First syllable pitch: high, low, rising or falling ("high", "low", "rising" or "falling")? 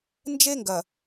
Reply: high